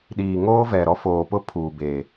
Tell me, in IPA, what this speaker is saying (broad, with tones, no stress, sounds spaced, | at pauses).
ɗ iː˨ ŋ oː˦ v ɛ˨ ɾ ɔ˦ f oː˨ p ʊ˦ pʰ uː˨ b eː˨